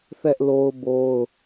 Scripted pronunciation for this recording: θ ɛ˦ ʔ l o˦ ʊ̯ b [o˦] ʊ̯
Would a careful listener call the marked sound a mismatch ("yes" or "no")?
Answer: no